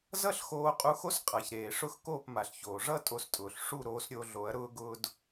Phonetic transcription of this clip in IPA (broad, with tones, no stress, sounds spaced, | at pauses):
z ʌ˥ ɬ x oː˧ qʼ u˧ x o˥ s qʼ a˩ ç ɾ eː˩ ʂ ʊ˥˩ x k oː˥˩ p m a˩ ɬ ç oː˩ ʐ ʌ˥ tʼ o˧ s tʼ ʊː˩ ɬ ʂ u˥˩ ɾ oː˩˥ s ɾʲ o˧ ɮ o˩˥ ɐ̯ ɾ ʊː˥ ɡ ʊː˥ d